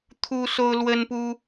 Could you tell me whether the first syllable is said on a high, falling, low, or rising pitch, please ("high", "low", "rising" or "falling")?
high